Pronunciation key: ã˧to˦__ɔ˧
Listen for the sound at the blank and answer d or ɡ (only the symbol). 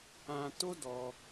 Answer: d